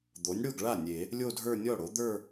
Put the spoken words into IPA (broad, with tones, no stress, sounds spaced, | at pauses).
d̪ o˩˥ nʲ ɽ o˥˩ ɡ ɭ a˥˩ nʲ e˨˩˦ | lʲ o˥˧ dʱ ə˞˥˧ nʲ ɔ˥˩ ɽ o˩˥ d̪ ə˞˥˧